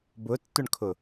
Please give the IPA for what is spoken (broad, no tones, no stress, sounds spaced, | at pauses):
b ʊ tː ʊ ɳ kʰ ʊ